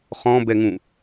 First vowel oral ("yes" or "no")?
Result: no